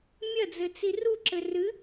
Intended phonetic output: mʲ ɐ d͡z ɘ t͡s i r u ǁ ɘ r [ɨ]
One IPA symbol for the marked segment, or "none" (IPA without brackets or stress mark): ɨ